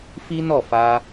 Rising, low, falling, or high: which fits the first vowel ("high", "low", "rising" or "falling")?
high